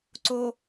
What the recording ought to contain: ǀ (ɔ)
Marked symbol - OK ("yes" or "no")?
no